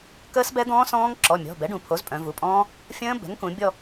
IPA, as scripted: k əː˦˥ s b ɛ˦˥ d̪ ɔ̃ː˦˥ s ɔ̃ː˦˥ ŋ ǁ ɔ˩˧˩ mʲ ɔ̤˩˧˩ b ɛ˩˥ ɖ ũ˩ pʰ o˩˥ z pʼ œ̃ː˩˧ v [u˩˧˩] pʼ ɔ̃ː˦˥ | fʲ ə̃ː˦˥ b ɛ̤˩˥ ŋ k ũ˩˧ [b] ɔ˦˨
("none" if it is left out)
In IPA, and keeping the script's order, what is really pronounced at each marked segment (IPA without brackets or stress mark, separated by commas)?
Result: u˩˧˩, bʲ